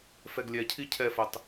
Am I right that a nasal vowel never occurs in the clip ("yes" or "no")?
yes